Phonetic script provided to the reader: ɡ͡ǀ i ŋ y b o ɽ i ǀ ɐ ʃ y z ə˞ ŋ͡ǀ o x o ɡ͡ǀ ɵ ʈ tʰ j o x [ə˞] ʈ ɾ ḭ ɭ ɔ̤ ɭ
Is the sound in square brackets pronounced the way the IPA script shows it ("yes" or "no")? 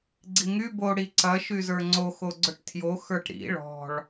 yes